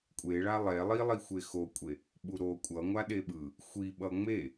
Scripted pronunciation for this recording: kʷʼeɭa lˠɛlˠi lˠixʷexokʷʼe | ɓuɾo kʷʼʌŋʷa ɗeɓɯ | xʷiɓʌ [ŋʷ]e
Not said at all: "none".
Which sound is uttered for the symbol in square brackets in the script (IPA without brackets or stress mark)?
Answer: ŋ͡m